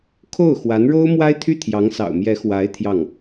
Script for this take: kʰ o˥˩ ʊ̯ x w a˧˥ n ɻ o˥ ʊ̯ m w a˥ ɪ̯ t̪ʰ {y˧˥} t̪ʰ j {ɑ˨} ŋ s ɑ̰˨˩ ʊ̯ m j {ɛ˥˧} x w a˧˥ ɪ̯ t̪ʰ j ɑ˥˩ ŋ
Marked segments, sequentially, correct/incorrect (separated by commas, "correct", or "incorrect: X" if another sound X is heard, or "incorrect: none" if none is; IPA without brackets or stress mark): incorrect: y˥˩, incorrect: ɑ˧˥, incorrect: ɛ˧˥